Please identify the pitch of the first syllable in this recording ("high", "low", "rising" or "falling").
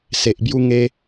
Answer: low